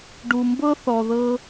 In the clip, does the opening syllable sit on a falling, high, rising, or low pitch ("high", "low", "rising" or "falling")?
low